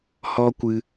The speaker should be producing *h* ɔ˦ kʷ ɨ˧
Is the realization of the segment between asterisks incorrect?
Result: no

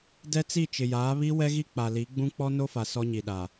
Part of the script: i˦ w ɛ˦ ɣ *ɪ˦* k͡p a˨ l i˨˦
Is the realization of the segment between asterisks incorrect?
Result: yes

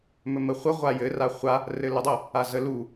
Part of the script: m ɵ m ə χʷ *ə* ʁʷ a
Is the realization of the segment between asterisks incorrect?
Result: no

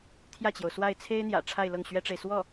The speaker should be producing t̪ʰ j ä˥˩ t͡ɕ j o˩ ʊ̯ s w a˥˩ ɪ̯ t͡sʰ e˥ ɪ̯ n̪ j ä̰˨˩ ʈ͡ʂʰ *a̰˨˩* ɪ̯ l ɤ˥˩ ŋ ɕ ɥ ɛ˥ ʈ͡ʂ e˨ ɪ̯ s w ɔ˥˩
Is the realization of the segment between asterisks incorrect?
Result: yes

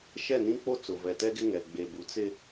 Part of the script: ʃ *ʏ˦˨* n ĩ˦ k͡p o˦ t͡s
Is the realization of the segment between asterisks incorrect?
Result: yes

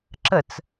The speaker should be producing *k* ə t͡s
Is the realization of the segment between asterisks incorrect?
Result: yes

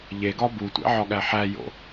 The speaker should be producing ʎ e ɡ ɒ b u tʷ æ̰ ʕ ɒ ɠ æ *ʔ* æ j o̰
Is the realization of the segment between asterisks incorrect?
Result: yes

